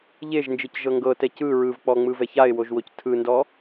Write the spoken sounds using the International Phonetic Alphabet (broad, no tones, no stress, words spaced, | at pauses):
ʎeʒnd͡ʒɯcʒɤ ŋɡɤtɛ cɯ ɹɯvk͡pɔŋ͡mɯvɛ çaɪ̯woʒwoc tʰɯndɔ